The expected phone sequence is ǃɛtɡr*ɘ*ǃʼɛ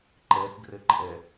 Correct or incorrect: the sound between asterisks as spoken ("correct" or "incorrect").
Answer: correct